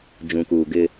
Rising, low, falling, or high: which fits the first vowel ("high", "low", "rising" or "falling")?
low